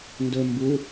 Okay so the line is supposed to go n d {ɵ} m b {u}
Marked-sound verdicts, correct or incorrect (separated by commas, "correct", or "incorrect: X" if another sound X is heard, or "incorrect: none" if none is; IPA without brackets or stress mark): correct, correct